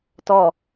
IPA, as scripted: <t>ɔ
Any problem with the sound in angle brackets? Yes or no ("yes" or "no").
no